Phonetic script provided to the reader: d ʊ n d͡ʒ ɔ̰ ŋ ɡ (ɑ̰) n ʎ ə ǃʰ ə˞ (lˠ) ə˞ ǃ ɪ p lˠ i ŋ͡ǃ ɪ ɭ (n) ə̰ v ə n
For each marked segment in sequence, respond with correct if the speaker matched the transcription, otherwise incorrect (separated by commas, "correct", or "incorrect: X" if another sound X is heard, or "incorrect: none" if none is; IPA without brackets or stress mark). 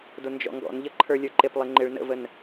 incorrect: ɔ̰, incorrect: lʲ, correct